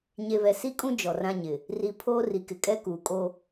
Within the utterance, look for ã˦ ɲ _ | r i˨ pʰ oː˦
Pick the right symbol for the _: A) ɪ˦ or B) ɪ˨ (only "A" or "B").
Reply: B